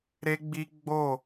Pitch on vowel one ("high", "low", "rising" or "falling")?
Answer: high